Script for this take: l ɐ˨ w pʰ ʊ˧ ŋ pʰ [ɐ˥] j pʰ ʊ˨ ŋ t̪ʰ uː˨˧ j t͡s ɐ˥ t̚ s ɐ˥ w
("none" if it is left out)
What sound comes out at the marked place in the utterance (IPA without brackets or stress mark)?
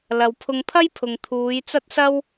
ɐ˥